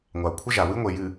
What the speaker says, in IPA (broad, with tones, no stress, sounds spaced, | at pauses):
ŋʷ a˨ u̯ kʷʰ ə˦ ʒ a˨ w ɨ˦ ŋʷ e˨ j ɨ˨